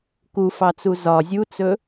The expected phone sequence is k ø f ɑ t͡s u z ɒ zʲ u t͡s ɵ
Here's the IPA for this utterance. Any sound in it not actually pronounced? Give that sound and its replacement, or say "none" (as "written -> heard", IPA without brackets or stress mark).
ø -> u